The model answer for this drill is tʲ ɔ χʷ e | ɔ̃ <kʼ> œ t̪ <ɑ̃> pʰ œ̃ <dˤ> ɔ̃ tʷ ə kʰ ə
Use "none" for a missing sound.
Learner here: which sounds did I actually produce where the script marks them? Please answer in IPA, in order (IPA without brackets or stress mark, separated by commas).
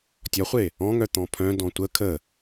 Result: ŋ, ɔ̃, d